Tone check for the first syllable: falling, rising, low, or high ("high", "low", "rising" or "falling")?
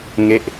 falling